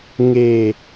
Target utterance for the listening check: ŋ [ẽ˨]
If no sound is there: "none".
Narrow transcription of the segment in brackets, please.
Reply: e˨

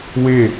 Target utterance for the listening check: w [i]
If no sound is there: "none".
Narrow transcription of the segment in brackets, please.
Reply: e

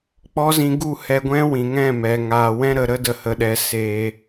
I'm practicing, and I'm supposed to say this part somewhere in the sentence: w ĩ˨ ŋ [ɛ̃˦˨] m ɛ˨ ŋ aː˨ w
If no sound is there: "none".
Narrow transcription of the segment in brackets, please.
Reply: ɛ̃˦˨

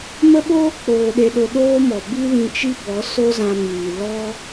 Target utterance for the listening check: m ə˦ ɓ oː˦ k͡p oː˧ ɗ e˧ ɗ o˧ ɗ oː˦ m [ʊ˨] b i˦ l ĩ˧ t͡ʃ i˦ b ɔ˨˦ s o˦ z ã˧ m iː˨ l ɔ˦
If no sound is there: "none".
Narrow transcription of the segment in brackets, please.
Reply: ɔ˨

